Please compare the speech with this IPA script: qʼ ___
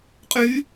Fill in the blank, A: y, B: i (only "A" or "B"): A